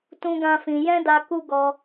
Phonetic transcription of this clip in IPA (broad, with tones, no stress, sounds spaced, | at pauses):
t ũ˦ ɡ ã˦ f ĩ˧ j ɛ̃˦ d a˧ k u˦ ɡ ɔ˧